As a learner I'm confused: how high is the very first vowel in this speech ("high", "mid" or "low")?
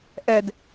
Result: mid